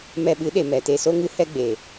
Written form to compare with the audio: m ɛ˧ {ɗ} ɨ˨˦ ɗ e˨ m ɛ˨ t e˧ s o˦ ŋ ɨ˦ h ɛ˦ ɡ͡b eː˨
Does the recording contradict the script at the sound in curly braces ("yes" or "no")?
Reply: yes